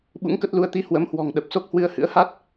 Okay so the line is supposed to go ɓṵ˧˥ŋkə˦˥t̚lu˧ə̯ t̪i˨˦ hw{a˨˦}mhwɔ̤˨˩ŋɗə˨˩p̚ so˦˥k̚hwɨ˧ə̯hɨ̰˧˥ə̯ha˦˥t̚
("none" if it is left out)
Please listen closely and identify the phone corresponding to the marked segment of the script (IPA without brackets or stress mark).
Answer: ə˨˦